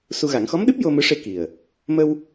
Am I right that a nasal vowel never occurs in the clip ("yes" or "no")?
yes